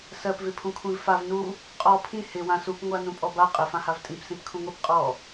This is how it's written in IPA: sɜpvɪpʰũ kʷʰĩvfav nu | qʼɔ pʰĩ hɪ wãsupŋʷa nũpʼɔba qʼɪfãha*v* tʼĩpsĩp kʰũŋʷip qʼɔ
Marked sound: correct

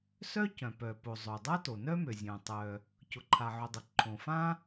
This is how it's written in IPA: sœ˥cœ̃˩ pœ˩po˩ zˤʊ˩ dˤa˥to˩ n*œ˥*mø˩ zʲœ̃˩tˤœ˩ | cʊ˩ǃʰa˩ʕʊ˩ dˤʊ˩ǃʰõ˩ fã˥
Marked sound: correct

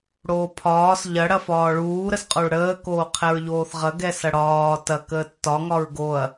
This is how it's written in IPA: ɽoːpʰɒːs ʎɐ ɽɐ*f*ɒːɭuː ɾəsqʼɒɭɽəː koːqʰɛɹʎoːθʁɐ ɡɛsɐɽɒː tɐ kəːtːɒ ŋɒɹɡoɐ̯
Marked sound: correct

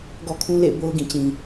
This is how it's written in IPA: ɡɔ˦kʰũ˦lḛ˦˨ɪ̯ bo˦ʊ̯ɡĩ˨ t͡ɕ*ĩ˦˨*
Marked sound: incorrect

